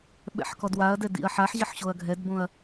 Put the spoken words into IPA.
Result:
ɓ ɛ̰ ħ k ɔ d w a ɐ̯ d ɛ d ḭ ɐ̯ ħ a ħ ʑ ɐ ħ ɕ o ɐ̯ ɡʱ ɛ d b õ ɐ̯

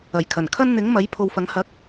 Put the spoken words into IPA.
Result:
ɐ˨˩ j kʰ ɐ˨˩ n kʰ ɐ˧ n n̪ ɪ˨˥ ŋ m ɐ˨˥ j pʰ o˨˧ w f ɐ˨˥ ŋ h ɐ˨˥ k̚

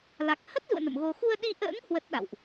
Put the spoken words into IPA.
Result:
l a˨˩ k̚ h ə˦˥ t̚ z ṵ˧˨ ə̯ n ə̰˧˨ m ɣ o˧ x u˧ ə̯ ɗ i˧ ʔ ə̰ː˧˥ ŋ h w ə˦˥ t̚ ɗ a̰˧˨ w ʔ

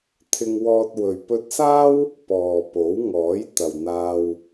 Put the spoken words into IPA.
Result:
t̪ʰ ɪ˧ ŋ w ɔː˧ t̚ w ɵ˨ ɥ p ɵ˧ t̚ s aː˥ w | p ɔː˨ p o˨˥ w ŋ ɔː˨˥ j t̪ ɐ˨ w n̪ aː˧ w

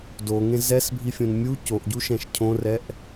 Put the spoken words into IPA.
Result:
d o ŋ ẽ z ɛ s bʱ i fʲ õ n mʲ u c o ʔ ɟ u ʃ ɛ̃ ʃ cʰ õ r ɛ ʔ

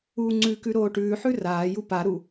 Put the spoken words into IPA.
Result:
uː ŋ͡ǀ ʉ k ʉ ɾ oː ʈ ʉː ħ ʉ r aː j u p a ɾ u

